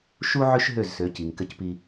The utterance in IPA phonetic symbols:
ʃ u˦ ʕ ø˦ ʃ ɦ ø˦˨ z s ø˨˦ c iː˨ ŋ k ɘ˦ c p i˦

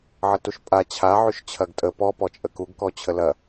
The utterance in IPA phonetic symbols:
ʕ ə t u ʃ pʼ a t͡ɕʰ a ʕ y ʃ t͡ɕʰ ɐ ɡ tʼ ə p ɔ p ɔ t͡ʃʼ ə k u ɡ k ɔ t͡ɕʰ ə l ɐ

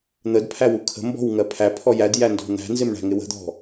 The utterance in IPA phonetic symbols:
n̪ ə d pʰ æ w u kʰ ə̤ m b ɔ̤ w ŋ ɜ pʰ æ pʰ ɔ j æ d j æ n d ɔ̤ n̪ æ̤ n z ɪ m ɳ æ̤ ŋ ɪ w ə̤ d̪ ɔ̤

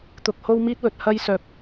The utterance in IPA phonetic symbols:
t̪ ʊ˧ k̚ h o˥ w m iː˥ t̚ w ɵ˨˥ t̚ h ɐ˥ j s œː˧ p̚

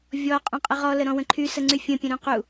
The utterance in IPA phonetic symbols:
vʲ ɔ qʼ ũ qʼ ə ʁ ɔ l ə ɾ ɔ̃ w ə̃ ǃʰ y s ə ŋ͡ǀ y fʲ ə̃ pʲ ə̃ ɾ ũ q u

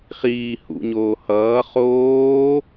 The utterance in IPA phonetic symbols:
χ iː h ṵ ɲ oː h ʌː χ oː

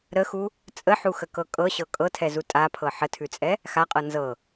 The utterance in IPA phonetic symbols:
ɾ ə x u | t͡sʼ ə ħ u x ə k ɤ kʼ ɤ ɕ ɤ kʼ ɤ tʰ ɛ z u tʼ a pʰ ɤ ħ ə tʰ ʉ t͡sʼ ɛ | x a qʼ ɤ n z ɤ

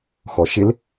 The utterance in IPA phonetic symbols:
x ɔ ʃ ɪ l

